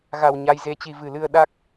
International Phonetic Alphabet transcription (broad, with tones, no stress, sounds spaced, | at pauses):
ɣ a˨˩ w ɲ a˧ j z e˧ t͡ɕ i˧ v ɨ˨˩ l ɨ˧ ə̯ ɗ a˦˥ k̚